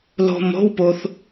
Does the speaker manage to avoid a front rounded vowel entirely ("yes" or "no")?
yes